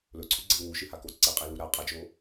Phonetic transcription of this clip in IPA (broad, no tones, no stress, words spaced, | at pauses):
lɵǀʰʉɡ͡ǀɨl wuʃɨhako ǀeqʼilu ɾa qʼad͡ʒo